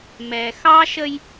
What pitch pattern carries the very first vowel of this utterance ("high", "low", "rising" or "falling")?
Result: low